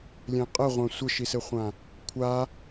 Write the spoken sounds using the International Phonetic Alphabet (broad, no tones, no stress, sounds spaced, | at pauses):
lʲ ɛ̃ qʼ ɘ ʁʷ ã sʷ ɘ ʃ i s ɘ χʷ ã | kʷʰ a